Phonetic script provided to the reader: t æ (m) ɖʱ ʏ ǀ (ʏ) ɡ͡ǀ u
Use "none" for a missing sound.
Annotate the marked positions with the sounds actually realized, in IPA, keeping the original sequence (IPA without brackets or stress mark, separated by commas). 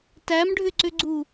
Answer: m, ʏ